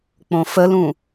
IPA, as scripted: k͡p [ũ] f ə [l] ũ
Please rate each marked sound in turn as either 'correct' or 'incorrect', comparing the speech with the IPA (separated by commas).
incorrect, correct